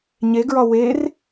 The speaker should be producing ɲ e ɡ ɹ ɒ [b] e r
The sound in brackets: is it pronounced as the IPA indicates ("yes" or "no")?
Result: no